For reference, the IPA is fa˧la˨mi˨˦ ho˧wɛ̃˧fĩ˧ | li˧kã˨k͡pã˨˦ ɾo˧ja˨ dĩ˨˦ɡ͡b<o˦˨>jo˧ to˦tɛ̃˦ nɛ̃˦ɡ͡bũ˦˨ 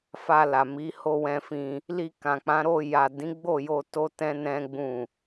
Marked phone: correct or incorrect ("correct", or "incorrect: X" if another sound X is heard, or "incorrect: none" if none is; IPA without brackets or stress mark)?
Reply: correct